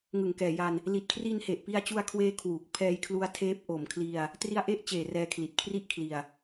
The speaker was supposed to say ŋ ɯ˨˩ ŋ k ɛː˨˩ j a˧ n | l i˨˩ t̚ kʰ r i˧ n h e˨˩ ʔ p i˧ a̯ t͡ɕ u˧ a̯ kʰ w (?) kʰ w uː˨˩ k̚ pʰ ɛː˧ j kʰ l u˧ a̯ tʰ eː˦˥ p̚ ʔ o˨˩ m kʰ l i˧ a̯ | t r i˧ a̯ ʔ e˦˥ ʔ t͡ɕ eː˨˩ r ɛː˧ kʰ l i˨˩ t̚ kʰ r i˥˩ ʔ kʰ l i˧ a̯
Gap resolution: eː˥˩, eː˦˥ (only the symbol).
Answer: eː˦˥